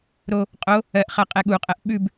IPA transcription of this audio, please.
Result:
ɾ o | qʼ o | ɜ ʔ χ ɜ qʼ ɛ ɠ u qʼ ɜ ʔ ɓ ʉ b

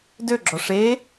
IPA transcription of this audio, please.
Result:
d ø ɡ͡ǁ ɔ ʂ e

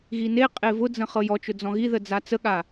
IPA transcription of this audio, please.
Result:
ɣ i n e qʼ e v ʊ d͡z ə̃ χ ɤ j ɔ t͡ʃ ʊ d͡z ɔ̃ ɣ i ð ə d͡z a t͡s ə ɠ a

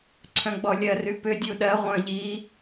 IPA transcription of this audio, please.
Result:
ǀʰ œ̃ ɡ͡b ɔ lʲ ɜ r y p ʏ dʲ u ɗ ɜ ʁʷ œ̃ ʎ i

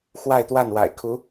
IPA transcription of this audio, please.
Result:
x w a˥˧ ɪ̯ t̪ w a˥˩ n w a̰˨˩ ɪ̯ kʰ u˧˥

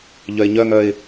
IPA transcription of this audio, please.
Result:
ʎ œ ɪ̯ ɲ œ ŋ œ ɪ̯

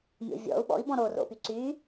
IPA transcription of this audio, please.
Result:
mʲ o̰ vʲ ɔ̰ u̯ ɓ ɔ̰ i̯ b ɔ̃ ɾ o r o̰ p y ǀ y

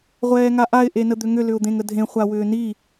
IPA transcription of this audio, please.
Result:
ʁʷ ɛː ŋ a ʔ a ɪ̯ ʔ e n ə d̪ ʏ ŋ ʏ l ʏ ʊ̯ d̪ ẽ ŋ ə dʱ ẽ χʷ a w ʏː n i

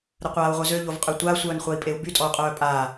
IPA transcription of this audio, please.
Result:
ɾ ə qʷ aː u̯ ʁʷ œ z ø ʎ o v qʼ ø tʷ a sʷ œː n χʷ a i̯ pʼ e u̯ b y tʼ ɔ u̯ qʼ œː pʼ aː

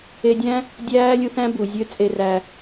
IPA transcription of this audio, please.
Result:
e˧ dʲ æ̃˦ | dʲ æː˦ lʲ u˧ θ æ̃˦ b u˨ zʲ ø˦ t͡sʼ e˧ r æ˧

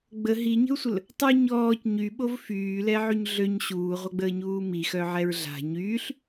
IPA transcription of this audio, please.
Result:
ɡ͡b ə ɦ i ɲ ə̤ u̯ sʷ ə l | tˤ u ɲ ɔː c ɲ y ɓ o v f yː l ɛ ʕ y ɲ ɮ ø ɲ ɕ uː ʁʷ œ ɡ͡b əː ɲ uː m i x œ ʕ ɛ ɹ ɮ a̤ ɲ yː ɬ

